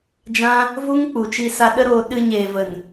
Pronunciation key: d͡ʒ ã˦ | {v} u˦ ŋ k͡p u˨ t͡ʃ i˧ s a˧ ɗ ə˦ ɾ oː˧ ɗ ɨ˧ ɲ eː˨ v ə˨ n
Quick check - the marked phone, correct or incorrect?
correct